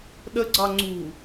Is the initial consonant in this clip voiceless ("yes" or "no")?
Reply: no